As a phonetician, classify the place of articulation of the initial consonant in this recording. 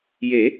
palatal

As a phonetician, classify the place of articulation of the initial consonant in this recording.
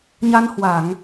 palatal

